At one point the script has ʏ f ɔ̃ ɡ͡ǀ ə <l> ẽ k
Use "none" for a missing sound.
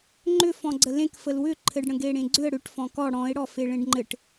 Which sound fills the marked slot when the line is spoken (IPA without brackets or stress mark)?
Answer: l